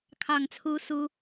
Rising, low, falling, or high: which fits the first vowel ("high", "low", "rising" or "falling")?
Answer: low